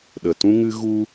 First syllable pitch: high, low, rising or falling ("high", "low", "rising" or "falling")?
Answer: low